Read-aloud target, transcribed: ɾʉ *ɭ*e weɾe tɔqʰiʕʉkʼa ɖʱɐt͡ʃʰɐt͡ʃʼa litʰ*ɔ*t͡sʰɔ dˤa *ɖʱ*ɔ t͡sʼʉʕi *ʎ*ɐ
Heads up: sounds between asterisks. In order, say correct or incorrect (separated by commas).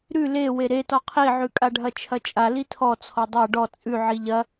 incorrect, correct, incorrect, correct